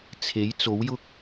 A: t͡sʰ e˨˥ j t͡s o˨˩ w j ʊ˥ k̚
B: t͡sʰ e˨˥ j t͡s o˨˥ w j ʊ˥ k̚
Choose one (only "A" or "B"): B